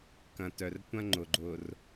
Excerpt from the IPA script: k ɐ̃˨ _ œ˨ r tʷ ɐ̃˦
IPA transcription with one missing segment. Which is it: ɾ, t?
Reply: t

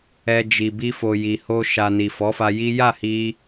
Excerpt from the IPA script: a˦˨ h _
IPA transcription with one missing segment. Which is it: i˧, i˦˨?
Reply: i˧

